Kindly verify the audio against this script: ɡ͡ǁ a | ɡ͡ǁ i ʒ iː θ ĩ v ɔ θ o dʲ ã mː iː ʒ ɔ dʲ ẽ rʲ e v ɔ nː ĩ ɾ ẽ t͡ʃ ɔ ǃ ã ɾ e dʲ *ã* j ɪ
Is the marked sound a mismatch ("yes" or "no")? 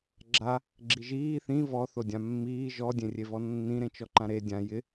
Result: no